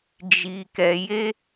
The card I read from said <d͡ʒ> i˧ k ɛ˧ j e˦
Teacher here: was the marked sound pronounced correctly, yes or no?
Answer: yes